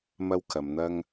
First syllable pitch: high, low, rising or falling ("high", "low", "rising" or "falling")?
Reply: high